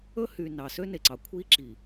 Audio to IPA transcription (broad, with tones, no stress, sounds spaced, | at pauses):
ɵ˦ h y˨ n ɑ˨ s ø˦ n e˨ ǀ ɑ˨ kʷʰ i˦ ǁ i˨